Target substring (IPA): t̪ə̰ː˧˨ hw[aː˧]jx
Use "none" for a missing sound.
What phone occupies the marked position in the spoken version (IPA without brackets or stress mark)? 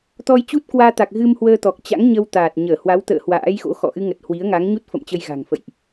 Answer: a̰ː˧˥